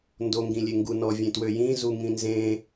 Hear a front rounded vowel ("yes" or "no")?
yes